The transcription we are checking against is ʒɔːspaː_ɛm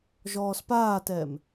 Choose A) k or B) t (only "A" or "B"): B